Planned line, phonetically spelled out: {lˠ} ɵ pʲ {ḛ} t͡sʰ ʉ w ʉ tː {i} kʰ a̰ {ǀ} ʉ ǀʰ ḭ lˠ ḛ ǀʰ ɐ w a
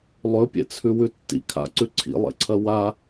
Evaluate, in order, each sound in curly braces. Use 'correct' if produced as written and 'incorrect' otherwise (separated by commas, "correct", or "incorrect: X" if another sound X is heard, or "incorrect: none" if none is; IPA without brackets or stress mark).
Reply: correct, correct, incorrect: ḭ, correct